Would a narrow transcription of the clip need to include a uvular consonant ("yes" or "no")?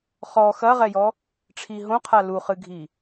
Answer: yes